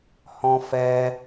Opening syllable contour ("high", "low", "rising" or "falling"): high